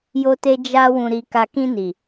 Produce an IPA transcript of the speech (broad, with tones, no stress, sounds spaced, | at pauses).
j o˦ t e˦ d͡ʒ a˦ w ũ˧ ɾ i˧ k a˧ k ĩ˧ n i˨